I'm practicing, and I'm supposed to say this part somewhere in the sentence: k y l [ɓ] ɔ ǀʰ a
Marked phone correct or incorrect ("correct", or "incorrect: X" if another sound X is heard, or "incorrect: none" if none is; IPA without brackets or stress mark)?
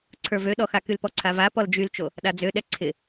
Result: incorrect: p